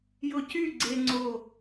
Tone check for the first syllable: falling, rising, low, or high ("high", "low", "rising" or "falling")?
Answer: high